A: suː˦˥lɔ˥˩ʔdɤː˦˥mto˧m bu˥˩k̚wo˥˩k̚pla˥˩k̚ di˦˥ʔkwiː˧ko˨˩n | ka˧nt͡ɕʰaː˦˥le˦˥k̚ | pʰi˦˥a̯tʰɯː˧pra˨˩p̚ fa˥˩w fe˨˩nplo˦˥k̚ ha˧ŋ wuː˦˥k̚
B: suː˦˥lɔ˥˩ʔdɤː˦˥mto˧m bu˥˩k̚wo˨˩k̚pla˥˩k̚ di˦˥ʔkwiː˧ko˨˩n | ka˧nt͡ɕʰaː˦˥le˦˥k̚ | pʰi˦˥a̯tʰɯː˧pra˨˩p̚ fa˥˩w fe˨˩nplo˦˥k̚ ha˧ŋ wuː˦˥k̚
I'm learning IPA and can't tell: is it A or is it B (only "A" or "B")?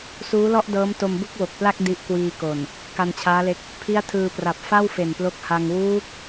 B